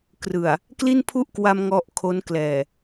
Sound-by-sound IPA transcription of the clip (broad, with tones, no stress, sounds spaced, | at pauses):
k r ɯ˨˩ a̯ | k l i˥˩ n pʰ u˥˩ ʔ k w a˧ m ŋ ɔ˦˥ ʔ kʰ o˦˥ n k l ɛː˨˩